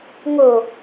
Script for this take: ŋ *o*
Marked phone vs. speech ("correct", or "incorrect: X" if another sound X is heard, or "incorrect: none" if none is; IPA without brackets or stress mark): correct